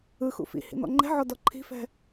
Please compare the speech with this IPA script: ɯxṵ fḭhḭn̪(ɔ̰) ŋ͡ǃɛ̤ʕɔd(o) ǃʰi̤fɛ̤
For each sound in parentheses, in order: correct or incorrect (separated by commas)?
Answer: correct, incorrect